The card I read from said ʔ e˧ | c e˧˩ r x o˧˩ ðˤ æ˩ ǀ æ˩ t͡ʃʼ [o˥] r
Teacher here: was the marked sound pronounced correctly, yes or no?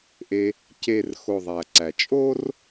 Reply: yes